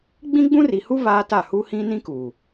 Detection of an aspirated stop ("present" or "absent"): absent